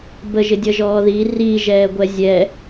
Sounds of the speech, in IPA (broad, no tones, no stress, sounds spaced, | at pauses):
b ə ʒ ɪ dʲ ʌ ʒ ɔː ð i r i ʒ ɛː ɡʷ ɛ zʲ ɛ